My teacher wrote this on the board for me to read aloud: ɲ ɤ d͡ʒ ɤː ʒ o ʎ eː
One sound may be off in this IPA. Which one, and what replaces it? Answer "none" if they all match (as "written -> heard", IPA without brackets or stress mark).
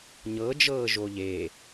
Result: none